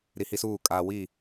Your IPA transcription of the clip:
ɾ i˨ h i˦ s uː˦˨ kʼ a˨ w i˦˨

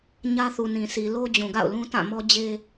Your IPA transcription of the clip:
ɲ ä˦ θ u˨ n ĩ˨ sʰ i˨ l o˦ d͡ʑ ũ˨ ɡ a̰˦˨ ʊ̯ l ũ˦ t ã˦˨ m ɔ˦ d͡ʑ e˦

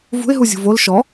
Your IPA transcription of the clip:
v ṳ ɪ̯ ɦ u zʲ ṳ v o l ʃ ɔ

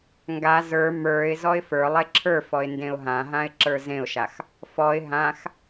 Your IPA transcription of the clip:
ŋ ɡ a z ə˞ m ə˞ ɪ̯ z ɔ ɪ̯ f ə˞ lˠ e ǁʰ ə˞ f ɔ ɪ̯ n d ẽ ʊ̯ ɦ ã ɦ ã ɪ̯ ǁ ə˞ z ẽ ʊ̯ ʃ a x | f ɔ ɪ̯ ɦ ã x

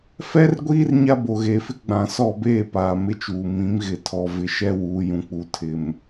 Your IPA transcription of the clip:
f ɛ˦ r ɡʷ iː˦ r ɲ a˦ b o˨ ɣ eː˨ f ɪ˦ ɡ͡b ã˨ s ɔ˦˨ b eː˦˨ p aː˨ m ɪ˦ t͡ʃ uː˨ m ĩ˨˦ m ɣ ɪ˨ tʰ ɔ˨ v ɪ˨ ʃ ɛ˦ w uː˨ j ũ˨ k͡p u˨ tʰ ɪ˨ m

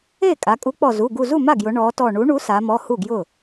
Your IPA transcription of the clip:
e˥˩ kʼ a˩˧ kʼ u˨˥ k͡p ɔ˧˩ z u˩˧˩ ɡ u˧˩ z u˥˩ m a˥˩ ɡ j ʊ˩˧ ɳ ɔ˩˧ t ɔ˧˩ ɳ u˨˥ ɳ u˨˥ s a˩˧ m ɔ˩˧˩ h u˥˩ ɡ j ʊ˥˩

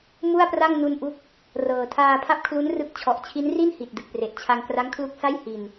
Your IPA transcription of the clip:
m u˥˩ a̯ p r a˥˩ ŋ n u˧ n ʔ u˦˥ k̚ | r ɤː˨˩ tʰ aː˧ pʰ a˥˩ p̚ kʰ l u˦˥ n r ɯ˦˥ k̚ t͡ɕʰ ɔ˨˩ ʔ t͡ɕʰ i˦˥ n r i˥˩ n h i˨˩ t̚ d ɯ˨˩ k̚ p r e˨˩ ʔ t͡ɕʰ a˧ ŋ k r a˦˥ ŋ kʰ l u˦˥ k̚ s a˥˩ j h i˧ n

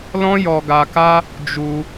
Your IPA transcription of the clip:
l ɔ̃˦ j ɔ˧ ɡ a˧ k a˦ | d͡ʒ u˧

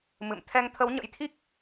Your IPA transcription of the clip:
m ɨ̰˧˨ m t̪ʰ ɛ˧ ŋ t̪ʰ ə˨˦ w ɲ ə̰˧˥ j t̪ʰ i˦˥ k̚

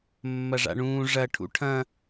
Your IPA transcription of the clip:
mː ɐ ʐ a̰ ɳ ũː ʐ ɐ ʈʰ ṵ ʈʰ ɐ̃

